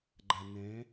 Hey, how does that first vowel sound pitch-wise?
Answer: low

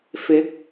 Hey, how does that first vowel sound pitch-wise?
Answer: rising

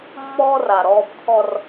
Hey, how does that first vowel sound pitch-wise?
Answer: high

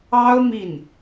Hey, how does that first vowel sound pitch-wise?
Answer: high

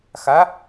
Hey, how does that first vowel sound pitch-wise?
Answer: rising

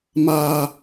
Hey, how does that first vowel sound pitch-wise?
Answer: high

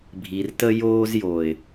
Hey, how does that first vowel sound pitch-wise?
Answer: low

